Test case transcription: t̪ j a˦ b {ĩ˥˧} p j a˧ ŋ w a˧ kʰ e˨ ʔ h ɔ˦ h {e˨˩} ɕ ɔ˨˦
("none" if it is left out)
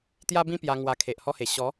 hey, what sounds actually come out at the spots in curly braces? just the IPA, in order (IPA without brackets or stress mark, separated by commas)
ĩ˦, e˨˩